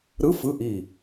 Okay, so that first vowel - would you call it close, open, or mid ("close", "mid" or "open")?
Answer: close